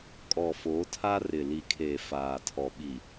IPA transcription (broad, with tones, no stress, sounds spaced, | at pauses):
kʼ ɔ˨ f oː˨˦ tʰ a˦ r ɪ˨ l i˨ kʰ eː˨ f aː˨ tʰ ɔ˨ ɓ i˨